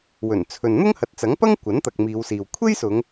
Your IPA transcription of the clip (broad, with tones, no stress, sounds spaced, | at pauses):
w ɵ˨˩ n t͡sʰ ɵ˨ n n̪ ʊ˥ ŋ h ɐ˨ t̚ t͡s ɐ˨˥ ŋ p ɐ˥ ŋ kʷ ɐ˨˥ n t̪ ɐ˨ k̚ m iː˨˧ w s iː˨ w kʷʰ e˥ j s ʊ˨˧ ŋ